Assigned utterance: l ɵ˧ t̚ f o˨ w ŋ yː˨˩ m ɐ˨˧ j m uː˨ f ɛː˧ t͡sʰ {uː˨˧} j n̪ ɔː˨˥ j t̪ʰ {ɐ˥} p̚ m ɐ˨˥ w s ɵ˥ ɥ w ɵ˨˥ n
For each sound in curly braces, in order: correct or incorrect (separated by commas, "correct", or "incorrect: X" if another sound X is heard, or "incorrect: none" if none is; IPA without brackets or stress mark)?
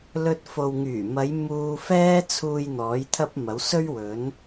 incorrect: uː˨, correct